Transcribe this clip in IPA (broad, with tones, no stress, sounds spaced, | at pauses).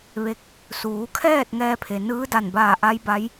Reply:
ʋ e˧˥ k̚ | s uː˩˧ kʰ ɛː˥˨ t̚ ŋ ɛː˧ pʰ e˩ n ɯː˧˥ d a˧˩ n b aː˧˩ ʔ a˧˥ j b a˧˥ j